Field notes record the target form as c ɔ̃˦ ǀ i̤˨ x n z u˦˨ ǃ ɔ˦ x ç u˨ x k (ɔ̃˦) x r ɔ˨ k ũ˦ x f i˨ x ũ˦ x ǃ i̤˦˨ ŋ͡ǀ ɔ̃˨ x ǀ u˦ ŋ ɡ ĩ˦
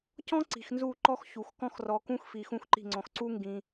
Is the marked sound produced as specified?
yes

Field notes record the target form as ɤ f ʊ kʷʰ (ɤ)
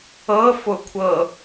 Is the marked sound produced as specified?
yes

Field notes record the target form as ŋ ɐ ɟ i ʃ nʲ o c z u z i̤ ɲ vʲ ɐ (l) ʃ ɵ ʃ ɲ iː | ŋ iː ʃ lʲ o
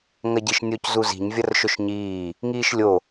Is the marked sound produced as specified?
no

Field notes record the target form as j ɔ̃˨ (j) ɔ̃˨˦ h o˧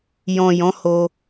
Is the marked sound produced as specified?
yes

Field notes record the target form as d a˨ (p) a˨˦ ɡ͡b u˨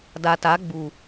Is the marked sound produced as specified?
no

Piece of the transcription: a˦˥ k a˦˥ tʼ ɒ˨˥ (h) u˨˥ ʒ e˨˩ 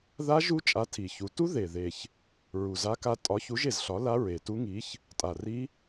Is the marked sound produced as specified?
no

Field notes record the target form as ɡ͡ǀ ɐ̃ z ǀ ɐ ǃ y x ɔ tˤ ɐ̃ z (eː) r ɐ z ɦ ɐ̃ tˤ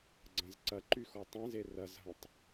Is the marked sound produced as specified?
no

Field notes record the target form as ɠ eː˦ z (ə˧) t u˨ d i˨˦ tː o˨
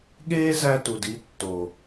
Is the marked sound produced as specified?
no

